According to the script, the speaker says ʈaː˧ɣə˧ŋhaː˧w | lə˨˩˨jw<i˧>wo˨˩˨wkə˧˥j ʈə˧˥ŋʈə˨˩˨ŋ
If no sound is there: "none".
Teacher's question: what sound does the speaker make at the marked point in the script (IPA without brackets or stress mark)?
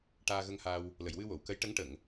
ɨ˧